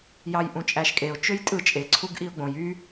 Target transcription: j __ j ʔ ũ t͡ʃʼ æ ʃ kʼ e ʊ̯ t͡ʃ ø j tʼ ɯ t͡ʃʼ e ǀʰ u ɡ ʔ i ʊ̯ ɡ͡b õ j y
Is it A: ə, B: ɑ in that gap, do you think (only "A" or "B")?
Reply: B